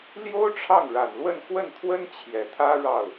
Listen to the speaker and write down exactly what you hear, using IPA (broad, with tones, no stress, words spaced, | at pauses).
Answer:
ljo˥ʊ̯ ʈ͡ʂʰɑ˥˩ŋɻa˨˩nlwə˥˧n xwə˥˩nt̪ʰwə˥n t͡ɕʰjɛ˨˩t̪ʰä˥ ɻɑ˥˩ʊ̯